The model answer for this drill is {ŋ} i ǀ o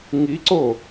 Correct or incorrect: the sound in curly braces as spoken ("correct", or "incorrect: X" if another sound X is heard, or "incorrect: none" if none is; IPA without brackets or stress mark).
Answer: correct